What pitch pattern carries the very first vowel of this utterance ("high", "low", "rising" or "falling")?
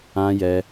high